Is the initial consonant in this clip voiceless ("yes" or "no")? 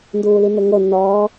no